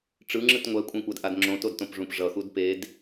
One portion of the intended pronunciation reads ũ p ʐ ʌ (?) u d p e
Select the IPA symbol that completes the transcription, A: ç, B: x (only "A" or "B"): B